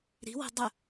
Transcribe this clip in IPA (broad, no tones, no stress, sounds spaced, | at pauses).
ɾ i̤ w ɛ̤ dˤ ɵ